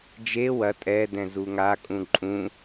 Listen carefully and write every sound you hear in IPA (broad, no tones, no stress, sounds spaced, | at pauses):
d͡ʒ e w ɐ tʼ ɛ d ɛ̃ z u ŋ a kʼ ũ ǃʼ ũ